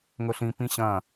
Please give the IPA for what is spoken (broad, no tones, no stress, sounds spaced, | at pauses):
ŋ ɵ ɬ ĩ p ĩ ɕ ɐ̃